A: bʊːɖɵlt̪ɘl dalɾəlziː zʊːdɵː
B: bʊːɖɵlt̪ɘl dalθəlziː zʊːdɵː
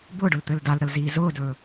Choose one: A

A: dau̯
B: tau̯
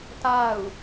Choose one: B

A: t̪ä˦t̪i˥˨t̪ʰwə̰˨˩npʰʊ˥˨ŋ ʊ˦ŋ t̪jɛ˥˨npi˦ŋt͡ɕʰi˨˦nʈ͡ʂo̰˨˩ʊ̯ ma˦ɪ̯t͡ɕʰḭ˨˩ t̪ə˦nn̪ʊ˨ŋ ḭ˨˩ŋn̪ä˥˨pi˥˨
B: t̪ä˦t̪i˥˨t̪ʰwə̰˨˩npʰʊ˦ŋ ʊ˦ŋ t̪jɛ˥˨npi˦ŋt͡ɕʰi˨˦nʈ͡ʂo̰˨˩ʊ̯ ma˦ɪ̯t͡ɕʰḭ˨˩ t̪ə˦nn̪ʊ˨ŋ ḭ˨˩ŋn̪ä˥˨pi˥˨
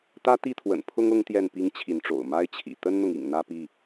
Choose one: B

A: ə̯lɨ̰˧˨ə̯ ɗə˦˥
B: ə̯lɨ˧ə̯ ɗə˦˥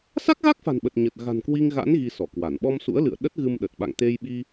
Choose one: A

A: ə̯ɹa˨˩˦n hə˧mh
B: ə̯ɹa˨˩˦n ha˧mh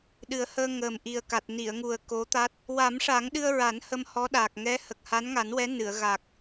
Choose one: A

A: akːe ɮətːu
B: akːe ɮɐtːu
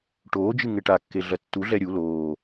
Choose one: B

